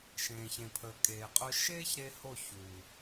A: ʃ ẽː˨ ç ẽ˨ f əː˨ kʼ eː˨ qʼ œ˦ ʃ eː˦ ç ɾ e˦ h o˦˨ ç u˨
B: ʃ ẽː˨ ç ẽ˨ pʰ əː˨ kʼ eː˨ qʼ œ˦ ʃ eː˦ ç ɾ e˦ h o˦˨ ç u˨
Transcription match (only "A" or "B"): B